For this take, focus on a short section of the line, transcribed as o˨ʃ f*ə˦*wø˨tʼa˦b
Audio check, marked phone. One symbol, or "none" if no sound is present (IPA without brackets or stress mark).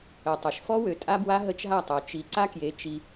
ɔ˦